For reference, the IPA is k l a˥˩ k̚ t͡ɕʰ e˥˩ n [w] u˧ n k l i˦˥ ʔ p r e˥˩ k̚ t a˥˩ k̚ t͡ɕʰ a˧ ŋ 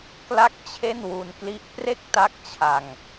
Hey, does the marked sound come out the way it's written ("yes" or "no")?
yes